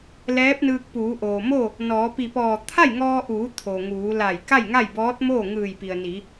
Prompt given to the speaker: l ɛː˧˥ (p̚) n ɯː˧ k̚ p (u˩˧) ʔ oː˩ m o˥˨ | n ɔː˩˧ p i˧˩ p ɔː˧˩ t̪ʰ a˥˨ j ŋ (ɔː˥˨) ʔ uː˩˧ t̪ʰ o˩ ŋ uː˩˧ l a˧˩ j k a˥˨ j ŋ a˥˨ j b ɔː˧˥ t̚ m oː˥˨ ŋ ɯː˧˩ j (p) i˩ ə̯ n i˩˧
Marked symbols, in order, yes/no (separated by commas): yes, no, no, yes